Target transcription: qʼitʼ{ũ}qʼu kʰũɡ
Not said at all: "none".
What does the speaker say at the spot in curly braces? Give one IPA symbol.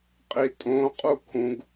õ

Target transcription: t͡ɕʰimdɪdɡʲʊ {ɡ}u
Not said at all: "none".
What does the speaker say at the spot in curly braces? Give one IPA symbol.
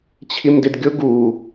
ɡ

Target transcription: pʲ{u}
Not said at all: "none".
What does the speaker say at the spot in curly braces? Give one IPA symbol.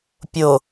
o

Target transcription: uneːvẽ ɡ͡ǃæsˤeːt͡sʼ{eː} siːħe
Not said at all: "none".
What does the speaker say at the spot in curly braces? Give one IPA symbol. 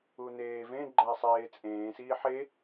ẽː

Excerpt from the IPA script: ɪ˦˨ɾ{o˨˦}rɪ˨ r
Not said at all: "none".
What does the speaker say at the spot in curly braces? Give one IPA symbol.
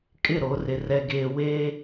o˨˦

